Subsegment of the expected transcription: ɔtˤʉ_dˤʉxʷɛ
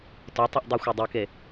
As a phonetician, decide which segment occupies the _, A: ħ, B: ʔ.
B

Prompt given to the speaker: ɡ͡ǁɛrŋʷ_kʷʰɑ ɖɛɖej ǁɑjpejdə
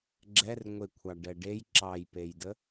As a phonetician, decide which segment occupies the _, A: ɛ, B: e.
B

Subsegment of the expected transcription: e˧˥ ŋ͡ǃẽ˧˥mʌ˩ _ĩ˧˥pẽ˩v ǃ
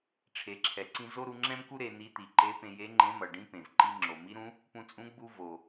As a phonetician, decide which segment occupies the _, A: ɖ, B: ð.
A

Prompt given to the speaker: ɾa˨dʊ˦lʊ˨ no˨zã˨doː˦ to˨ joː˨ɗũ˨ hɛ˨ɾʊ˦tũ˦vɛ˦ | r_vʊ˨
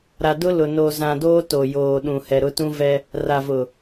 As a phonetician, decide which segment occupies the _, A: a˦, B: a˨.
B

